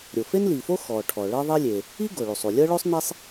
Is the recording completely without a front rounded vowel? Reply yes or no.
yes